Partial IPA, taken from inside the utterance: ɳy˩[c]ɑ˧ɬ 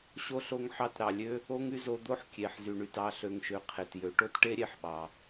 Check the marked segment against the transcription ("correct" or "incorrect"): incorrect